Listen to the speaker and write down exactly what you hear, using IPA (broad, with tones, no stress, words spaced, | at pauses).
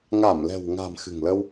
ŋa˧˩mlɛ̤˨˩wŋa̤˨˩m xɨ̤˨˩ŋlə˧w